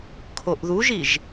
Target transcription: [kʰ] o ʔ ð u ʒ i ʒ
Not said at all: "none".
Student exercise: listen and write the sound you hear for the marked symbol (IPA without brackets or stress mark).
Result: kʰ